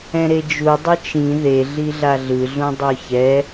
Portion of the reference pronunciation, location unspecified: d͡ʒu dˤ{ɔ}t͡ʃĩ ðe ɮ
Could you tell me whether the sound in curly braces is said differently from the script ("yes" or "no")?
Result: yes